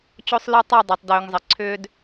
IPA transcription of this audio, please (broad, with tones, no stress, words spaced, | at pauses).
t͡ɕo˦sˤlœ˦ tˤo˦˨dˤo˨tˤ døː˨ŋzˤə˨ǀʰʏː˦d